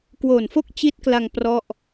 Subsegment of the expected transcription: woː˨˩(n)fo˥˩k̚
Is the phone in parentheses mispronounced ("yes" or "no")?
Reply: no